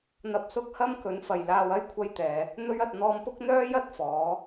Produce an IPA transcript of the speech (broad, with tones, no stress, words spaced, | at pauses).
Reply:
n̪ɐ˧p̚sʊ˥k̚hɐ˥m kɵ˨˥n fɐ˨jlaː˧wɐ˥j kʷʰɐ˥jt̪ɛː˨˧ | n̪ɵ˥ɥɐ˧t̚ n̪ɔː˧mpʊ˥k̚n̪œː˥jɐ˥t̚ fɔː˨˥